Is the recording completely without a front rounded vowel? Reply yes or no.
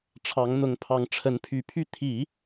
no